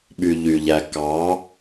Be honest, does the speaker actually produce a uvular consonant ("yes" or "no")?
no